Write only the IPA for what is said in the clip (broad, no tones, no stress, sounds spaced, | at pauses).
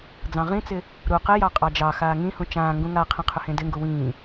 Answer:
d͡z ɑ̃ ʁ ĩ t͡s ɪ | ɾ u q ɪ j ɑ qʼ ɑ d͡ʒ ɑ x aː ŋ ĩ h ũ t͡ʃ ãː ŋ ɡ ũ ŋ a qʰ ĩ qʰ ʏ h ẽ d ɪ ŋ ɡ u w ĩː